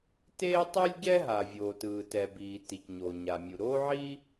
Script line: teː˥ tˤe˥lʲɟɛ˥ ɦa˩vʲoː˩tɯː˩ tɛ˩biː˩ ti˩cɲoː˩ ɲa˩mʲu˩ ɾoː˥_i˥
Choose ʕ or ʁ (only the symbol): ʕ